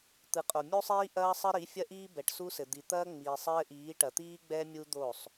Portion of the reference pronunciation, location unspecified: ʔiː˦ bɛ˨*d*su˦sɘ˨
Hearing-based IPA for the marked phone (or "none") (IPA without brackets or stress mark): ʈ